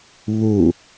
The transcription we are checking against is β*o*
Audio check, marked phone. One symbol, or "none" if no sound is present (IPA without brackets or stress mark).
u